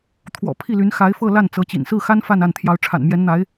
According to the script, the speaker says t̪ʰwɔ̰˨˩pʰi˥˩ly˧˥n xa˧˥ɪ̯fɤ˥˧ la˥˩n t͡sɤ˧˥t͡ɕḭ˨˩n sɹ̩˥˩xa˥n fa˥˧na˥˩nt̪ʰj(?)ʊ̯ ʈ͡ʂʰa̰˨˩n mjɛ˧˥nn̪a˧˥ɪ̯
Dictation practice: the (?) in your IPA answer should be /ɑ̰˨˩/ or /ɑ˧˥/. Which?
ɑ˧˥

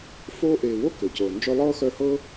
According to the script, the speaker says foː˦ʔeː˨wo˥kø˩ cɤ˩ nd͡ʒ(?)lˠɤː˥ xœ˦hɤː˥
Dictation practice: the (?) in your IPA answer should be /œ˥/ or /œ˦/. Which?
œ˦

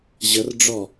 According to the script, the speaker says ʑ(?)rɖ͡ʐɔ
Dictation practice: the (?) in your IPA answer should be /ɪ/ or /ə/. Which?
ə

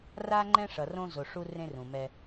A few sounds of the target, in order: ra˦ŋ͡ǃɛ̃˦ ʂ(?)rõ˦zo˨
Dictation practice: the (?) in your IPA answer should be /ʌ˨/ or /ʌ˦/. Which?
ʌ˨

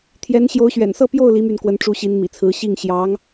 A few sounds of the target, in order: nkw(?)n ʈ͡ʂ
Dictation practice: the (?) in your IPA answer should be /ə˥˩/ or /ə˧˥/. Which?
ə˧˥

